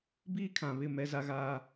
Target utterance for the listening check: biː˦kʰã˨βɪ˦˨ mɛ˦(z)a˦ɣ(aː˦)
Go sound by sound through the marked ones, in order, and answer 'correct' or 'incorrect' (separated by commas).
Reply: correct, correct